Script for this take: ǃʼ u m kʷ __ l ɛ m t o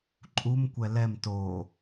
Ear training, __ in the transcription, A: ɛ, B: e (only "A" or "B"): A